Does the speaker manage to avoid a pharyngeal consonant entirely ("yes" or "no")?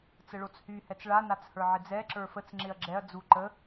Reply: no